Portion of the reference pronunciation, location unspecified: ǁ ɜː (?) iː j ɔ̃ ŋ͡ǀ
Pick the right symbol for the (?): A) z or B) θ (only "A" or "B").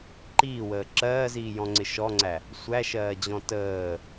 A